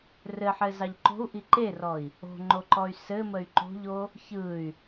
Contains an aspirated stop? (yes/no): no